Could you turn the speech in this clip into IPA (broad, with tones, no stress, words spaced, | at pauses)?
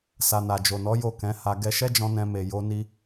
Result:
sa˨na˨d͡ʒo˨nɔ˨˦ jo˦˨ kɛ̃˨˦ha˧ ɡɛ˧ʃɛ˦d͡ʒɔ̃˧ nɛ̃˧me˨ jo˧ni˧